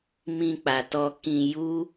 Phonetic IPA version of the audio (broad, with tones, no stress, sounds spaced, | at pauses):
m ĩ˧ k͡p a˨ t ɔ˧ k ĩ˧ j u˦